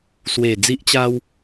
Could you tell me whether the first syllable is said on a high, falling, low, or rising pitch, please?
low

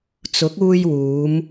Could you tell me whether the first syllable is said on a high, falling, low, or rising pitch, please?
rising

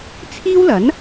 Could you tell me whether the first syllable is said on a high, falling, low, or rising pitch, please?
high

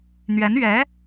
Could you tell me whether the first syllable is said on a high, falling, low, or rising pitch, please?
rising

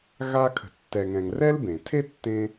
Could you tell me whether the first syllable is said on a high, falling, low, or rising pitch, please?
high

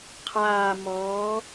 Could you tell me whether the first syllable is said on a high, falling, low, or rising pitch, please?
low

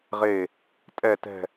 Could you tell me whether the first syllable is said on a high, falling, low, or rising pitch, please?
falling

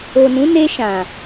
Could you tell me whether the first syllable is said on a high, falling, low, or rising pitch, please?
low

